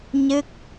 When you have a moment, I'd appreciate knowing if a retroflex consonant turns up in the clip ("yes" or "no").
no